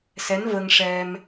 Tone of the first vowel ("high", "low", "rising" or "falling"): rising